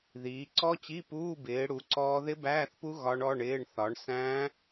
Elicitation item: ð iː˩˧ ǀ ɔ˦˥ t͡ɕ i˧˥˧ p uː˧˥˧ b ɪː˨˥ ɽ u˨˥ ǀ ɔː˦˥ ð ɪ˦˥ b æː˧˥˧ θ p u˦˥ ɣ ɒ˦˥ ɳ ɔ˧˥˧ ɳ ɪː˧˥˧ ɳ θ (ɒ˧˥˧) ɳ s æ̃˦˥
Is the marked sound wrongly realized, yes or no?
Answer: yes